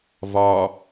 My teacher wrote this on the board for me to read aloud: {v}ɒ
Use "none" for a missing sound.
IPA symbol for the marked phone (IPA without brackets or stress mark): v